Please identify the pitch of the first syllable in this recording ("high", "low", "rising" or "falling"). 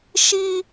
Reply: high